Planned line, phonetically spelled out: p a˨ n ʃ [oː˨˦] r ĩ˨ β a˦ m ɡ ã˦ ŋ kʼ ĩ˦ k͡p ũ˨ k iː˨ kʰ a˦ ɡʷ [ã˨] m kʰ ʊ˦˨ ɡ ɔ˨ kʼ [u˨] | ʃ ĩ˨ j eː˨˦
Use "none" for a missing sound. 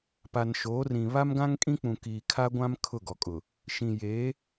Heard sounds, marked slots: oː˨˦, ã˦, ʊ˨

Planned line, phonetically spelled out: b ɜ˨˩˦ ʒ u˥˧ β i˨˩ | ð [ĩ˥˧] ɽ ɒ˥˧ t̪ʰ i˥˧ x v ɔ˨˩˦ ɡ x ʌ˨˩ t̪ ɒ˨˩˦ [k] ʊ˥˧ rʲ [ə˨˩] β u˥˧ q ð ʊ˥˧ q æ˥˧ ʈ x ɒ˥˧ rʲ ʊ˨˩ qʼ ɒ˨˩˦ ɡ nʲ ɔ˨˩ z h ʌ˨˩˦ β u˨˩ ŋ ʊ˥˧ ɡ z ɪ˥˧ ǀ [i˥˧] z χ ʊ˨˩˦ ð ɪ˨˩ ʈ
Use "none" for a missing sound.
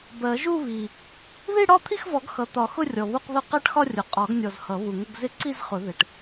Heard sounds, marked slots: i˥˧, x, ɔ˨˩, i˥˧

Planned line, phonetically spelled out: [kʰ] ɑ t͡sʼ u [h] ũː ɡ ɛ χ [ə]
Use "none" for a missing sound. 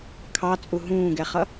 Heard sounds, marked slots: kʰ, ɦ, ʌ

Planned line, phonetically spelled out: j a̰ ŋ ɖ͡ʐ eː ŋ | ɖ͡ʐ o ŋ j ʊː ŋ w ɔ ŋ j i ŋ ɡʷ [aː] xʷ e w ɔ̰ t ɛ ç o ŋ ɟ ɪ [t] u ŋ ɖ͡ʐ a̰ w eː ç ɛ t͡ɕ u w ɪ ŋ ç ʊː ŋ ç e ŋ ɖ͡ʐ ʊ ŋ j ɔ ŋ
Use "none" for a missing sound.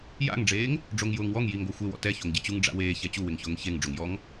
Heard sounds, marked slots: a, t͡ɕ

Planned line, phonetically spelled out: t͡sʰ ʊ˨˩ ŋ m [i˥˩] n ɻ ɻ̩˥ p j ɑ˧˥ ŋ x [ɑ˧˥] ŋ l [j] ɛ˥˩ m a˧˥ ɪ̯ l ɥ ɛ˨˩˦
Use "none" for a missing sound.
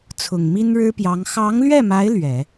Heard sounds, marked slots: i˥, ɑ˧˥, ɥ

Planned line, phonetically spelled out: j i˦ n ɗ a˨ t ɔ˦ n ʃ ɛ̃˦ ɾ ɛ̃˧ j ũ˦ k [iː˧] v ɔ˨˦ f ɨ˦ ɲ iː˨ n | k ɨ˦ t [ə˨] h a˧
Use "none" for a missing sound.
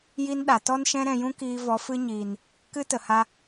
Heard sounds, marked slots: iː˧, ə˨

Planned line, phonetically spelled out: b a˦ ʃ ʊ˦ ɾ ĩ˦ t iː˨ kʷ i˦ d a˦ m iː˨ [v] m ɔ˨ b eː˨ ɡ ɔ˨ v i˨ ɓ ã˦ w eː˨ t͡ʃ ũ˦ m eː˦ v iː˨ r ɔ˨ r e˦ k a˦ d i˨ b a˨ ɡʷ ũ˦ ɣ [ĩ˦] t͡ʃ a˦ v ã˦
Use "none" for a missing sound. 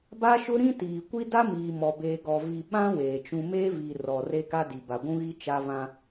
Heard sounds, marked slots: none, i˦

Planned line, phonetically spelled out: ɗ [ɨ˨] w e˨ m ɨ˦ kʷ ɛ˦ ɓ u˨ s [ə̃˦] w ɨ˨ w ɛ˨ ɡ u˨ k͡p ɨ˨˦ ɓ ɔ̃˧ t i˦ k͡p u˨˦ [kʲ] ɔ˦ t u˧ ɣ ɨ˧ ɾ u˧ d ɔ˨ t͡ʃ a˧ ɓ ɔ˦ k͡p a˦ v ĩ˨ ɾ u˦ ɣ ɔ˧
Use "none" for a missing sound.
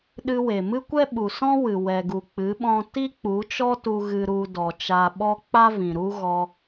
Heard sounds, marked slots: ɨ˧, ɔ̃˦, t͡ʃ

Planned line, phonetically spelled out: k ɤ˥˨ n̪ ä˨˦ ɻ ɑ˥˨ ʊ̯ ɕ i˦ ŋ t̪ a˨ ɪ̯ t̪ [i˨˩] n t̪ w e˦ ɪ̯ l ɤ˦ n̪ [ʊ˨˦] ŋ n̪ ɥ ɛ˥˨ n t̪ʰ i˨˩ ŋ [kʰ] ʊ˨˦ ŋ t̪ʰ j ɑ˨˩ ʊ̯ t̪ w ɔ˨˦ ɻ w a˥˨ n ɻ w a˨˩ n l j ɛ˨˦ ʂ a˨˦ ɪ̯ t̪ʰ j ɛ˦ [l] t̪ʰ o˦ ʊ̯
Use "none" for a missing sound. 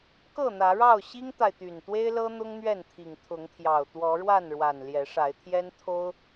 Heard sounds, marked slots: y˨˩, ʊ˦, t̪ʰ, n

